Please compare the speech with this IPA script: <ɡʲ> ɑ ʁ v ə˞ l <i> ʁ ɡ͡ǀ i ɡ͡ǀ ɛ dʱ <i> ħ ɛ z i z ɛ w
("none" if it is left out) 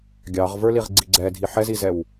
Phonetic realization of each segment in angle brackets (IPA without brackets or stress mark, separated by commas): ɡʲ, i, i